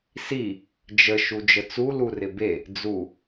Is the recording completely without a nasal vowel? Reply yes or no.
yes